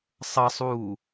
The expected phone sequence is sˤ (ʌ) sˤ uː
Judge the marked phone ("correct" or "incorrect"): correct